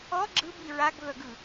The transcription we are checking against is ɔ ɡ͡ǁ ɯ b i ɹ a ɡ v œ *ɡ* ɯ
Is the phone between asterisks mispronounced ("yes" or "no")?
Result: no